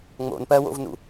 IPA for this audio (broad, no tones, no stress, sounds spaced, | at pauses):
ŋ͡m o̰ n p ɜ w o̰ v n ṵ